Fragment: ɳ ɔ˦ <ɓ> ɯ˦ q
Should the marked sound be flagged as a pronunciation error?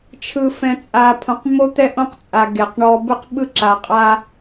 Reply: yes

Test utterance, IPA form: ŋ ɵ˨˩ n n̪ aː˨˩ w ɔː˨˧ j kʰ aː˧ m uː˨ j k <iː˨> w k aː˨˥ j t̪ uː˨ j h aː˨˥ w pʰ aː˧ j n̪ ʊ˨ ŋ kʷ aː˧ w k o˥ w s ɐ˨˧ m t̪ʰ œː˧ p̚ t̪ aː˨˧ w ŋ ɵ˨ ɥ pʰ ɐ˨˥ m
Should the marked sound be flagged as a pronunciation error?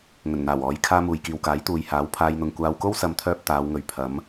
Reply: no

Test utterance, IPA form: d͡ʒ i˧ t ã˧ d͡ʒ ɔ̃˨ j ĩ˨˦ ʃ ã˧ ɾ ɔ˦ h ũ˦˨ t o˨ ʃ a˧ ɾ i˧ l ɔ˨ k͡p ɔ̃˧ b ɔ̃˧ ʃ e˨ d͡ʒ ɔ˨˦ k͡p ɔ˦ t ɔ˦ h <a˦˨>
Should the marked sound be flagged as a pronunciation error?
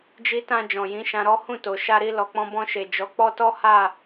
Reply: no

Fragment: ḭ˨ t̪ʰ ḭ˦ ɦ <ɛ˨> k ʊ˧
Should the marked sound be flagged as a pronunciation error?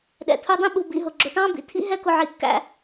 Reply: yes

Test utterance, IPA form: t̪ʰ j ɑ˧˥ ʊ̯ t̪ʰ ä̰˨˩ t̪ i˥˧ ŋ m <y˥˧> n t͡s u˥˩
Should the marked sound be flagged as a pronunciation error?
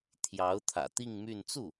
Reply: no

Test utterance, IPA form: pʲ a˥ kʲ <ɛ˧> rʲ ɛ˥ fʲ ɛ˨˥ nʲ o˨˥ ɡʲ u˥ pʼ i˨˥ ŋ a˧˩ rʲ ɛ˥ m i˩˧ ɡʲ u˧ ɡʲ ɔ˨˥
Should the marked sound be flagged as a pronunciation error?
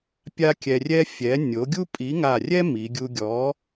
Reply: no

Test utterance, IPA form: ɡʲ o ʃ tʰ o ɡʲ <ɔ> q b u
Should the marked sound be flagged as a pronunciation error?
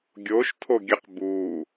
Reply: yes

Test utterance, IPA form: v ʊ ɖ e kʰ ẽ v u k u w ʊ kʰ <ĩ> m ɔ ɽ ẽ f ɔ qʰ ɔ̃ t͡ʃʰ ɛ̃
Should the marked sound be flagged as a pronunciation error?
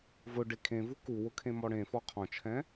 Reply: yes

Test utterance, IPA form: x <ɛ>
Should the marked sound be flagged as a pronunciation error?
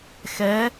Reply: no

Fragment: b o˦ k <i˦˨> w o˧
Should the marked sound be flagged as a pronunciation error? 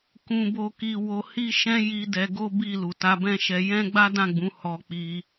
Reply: yes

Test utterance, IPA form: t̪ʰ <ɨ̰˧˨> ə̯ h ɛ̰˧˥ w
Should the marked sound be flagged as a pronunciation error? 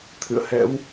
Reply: no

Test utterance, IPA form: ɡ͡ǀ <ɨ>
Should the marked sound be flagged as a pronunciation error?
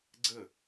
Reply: yes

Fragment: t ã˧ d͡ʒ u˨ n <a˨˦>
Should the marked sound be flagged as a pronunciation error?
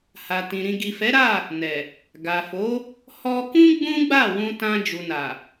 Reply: yes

